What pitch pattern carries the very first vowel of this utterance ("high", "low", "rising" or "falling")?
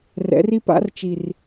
rising